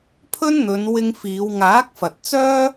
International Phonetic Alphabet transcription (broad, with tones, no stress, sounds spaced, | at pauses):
pʰ ɵ˥ n n̪ ɵ˨˧ n w ɪ˧ ŋ f iː˨˧ w ŋ aː˨˥ k̚ f ɐ˨ t̚ t͡s œː˥